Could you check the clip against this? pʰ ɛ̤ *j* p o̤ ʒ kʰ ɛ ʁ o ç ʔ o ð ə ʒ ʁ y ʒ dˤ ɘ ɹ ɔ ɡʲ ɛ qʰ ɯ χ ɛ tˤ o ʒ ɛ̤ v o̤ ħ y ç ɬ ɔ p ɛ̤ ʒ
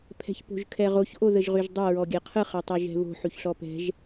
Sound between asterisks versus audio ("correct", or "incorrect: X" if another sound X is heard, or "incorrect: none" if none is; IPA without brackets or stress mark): incorrect: ç